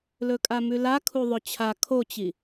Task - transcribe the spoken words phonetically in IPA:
l ɵ kʼ a m ʉ l a kʰ u ðˤ ɵ t͡ɕʰ a kʰ o t͡ɕ i

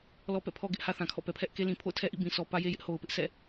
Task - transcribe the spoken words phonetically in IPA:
l ɔ˦ p ɛ̰˦˨ pʰ ɔ˦ ɡ ɪ˦ ʔ h ä˦ θ ã˨ kʰ ɔ̰˦˨ p ɛ˨ pʰ ɛ˦ ʔ k e˦ l ĩ˨ pʰ o̰˦˨ ʊ̯ tʰ ɛ˦ ʔ ḭ˦˨ b ĩ˨ s ɔ˨ p ä˦ j e˦ j ɪ˦ ʔ h o˨ ʊ̯ p ɪ˦ ʔ s ɛ̰˦˨

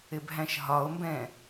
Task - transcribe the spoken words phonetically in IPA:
ɪ b ɦ æ̃ ʃ ɦ ɒ o̯ m b ɛ̃

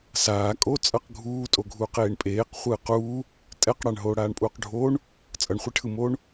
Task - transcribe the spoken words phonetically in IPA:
s aː kʼ o t͡sʼ ʌ q ɡʱ uː tʼ o ɡʱ uː q eː ɳ pʼ eː q χʷ ɯː q uː | tʼ ɛ q ɽ a ɳ ɦ oː ɽ aː ɳ pʼ uː q ɖʱ oː ɳ | t͡sʼ ʌ ɳ χʷ i ʈʰ ɯ m oː ɳ

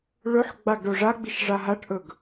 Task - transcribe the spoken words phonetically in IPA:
ɭ ɵ ħ ɡ͡b a ɡ ɖ o ʐ a ɡ͡b i ʃ ʐ a ɦ a ʈ ʔ ɵ ɡ

